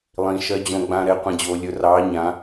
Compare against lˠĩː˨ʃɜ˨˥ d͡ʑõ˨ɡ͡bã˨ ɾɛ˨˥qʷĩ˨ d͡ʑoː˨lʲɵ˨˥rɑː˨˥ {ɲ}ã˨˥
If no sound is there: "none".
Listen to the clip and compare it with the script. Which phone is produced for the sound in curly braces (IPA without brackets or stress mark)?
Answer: ɲ